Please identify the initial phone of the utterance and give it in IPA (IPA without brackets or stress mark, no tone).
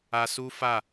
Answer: a